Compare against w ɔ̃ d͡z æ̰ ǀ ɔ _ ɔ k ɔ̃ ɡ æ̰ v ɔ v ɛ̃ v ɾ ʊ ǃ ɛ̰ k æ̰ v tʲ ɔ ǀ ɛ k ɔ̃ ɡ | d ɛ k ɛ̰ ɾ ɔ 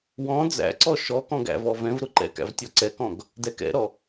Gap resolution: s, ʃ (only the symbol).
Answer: ʃ